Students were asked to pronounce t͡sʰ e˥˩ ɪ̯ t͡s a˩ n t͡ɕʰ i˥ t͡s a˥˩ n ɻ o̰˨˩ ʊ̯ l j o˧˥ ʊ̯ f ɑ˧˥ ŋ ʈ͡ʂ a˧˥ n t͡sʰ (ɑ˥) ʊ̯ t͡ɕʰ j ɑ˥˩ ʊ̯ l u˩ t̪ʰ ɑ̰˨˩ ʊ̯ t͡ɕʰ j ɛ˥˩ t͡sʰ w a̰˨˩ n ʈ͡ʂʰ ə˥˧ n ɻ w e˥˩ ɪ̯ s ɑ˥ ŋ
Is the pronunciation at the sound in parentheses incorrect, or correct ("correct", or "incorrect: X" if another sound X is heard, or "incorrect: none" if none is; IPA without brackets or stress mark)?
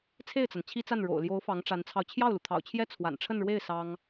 incorrect: ɑ˧